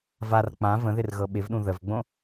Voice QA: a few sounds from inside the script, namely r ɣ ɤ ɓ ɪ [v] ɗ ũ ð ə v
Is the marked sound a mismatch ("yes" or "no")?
no